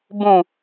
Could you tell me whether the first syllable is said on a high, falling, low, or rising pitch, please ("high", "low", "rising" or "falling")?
low